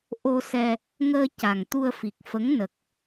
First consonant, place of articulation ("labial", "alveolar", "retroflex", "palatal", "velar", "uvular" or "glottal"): glottal